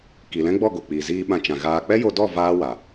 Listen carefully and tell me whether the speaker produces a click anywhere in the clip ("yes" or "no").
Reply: no